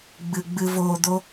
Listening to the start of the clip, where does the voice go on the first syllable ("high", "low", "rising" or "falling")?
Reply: low